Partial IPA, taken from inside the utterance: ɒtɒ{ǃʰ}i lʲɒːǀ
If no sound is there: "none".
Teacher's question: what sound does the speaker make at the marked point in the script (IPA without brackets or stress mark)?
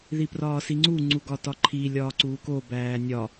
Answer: ǃʰ